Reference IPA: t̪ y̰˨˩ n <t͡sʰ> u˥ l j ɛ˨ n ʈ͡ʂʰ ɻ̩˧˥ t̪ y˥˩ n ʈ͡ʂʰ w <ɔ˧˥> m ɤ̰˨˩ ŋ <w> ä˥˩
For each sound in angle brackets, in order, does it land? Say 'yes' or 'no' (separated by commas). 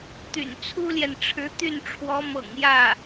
yes, yes, no